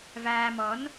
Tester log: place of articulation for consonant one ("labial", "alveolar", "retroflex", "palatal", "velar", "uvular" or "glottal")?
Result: labial